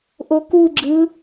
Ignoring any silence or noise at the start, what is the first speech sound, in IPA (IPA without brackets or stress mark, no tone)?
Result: ʔ